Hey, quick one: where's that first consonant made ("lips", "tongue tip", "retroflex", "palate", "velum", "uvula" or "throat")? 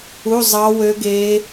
tongue tip